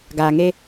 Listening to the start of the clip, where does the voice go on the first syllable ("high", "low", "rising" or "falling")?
low